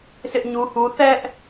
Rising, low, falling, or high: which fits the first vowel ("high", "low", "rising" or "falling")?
high